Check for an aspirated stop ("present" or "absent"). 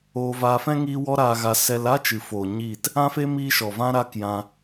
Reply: absent